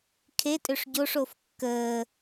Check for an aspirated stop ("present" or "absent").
present